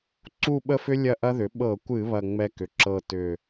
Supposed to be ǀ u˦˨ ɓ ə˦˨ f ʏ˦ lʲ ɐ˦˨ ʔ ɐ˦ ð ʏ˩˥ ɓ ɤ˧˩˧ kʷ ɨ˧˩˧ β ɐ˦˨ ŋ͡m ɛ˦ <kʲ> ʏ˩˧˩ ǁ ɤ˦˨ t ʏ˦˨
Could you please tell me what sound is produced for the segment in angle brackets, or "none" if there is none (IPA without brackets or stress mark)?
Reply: k